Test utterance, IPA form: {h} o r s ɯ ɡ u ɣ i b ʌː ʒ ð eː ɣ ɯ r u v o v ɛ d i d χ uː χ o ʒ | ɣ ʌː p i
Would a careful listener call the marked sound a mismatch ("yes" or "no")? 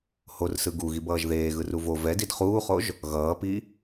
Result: no